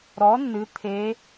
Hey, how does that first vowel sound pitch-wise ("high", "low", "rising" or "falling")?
rising